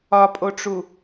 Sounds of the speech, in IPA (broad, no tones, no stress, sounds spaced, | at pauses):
ɒ pʼ o ʈ͡ʂ u